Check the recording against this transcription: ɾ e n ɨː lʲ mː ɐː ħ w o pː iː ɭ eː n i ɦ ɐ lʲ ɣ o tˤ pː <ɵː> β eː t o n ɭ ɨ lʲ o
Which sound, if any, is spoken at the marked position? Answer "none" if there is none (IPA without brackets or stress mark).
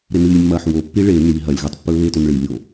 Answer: ɵː